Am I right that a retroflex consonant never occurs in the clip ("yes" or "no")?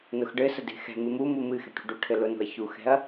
no